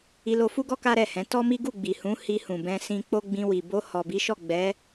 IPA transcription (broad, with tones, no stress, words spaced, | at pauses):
i˧lo˧fu˦ɡɔ˦ ka˦ɾɛ˦˨hɛ̃˨˦ tɔ˦mi˦ ɡu˦˨ɡ͡bi˨hũ˨˦ hi˧hũ˨bɛ̃˧ sĩ˧k͡po˦ɡ͡bĩ˧wi˨ bo˧ hɔ˨bi˨˦ʃɔ˦˨ ɡ͡bɛ˨˦